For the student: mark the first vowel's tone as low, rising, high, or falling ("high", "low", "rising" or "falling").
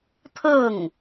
falling